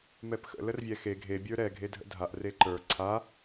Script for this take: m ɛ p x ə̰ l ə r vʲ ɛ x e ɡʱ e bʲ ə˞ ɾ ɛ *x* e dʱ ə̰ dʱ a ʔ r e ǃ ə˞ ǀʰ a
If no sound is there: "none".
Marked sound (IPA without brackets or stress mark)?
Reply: ɡʱ